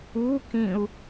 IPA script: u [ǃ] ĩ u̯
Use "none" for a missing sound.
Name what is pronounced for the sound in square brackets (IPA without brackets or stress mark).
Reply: k